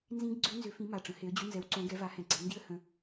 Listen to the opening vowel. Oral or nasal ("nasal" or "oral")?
nasal